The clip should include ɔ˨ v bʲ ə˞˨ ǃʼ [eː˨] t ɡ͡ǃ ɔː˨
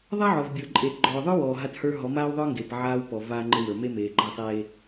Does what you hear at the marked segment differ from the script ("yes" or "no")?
no